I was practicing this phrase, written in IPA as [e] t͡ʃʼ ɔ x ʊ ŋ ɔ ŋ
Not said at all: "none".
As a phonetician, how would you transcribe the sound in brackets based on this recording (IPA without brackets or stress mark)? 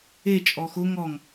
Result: e